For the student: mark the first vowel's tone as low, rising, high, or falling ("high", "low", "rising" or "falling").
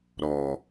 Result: low